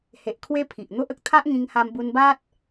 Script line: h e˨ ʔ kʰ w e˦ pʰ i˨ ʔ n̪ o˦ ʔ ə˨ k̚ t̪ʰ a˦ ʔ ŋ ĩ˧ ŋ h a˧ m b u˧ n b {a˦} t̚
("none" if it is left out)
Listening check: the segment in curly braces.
a˦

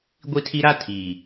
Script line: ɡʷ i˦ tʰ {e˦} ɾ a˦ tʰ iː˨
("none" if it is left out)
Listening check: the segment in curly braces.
i˦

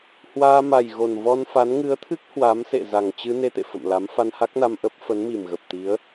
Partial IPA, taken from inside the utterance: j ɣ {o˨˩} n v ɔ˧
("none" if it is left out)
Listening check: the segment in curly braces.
o˨˩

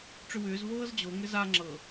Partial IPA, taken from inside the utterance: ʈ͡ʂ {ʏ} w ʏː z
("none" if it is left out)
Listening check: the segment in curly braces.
ʏ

